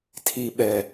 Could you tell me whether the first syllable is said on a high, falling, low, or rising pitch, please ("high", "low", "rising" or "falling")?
low